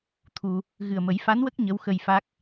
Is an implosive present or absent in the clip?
absent